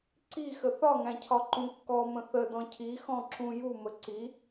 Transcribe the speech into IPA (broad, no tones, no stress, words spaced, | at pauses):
ǀi xəθɒŋæ̃cʰɒ ǃũkːɔmə̃ θədɔ̃ cʰixɔ̃ǁũ ju məǀi